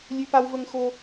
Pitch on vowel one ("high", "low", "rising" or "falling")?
high